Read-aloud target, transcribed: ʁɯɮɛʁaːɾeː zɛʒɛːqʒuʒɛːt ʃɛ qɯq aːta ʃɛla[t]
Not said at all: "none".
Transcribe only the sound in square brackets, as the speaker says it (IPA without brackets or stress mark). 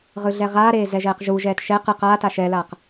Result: q